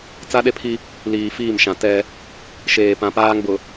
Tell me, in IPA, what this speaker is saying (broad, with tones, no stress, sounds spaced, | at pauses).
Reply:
t͡s a˦ ɗ e˦ pʰ i˦ | l iː˨ f iː˦˨ m ʃ ã˨ t ɛ˦ | ʃ eː˨ p ã˨ p aː˦ ŋ b ʊ˨